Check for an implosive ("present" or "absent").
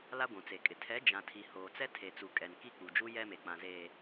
absent